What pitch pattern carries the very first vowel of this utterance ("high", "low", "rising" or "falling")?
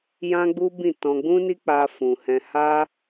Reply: high